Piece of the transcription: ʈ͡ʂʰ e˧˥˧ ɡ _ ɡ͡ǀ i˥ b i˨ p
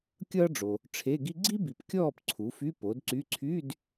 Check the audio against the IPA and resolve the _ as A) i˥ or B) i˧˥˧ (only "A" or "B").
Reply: A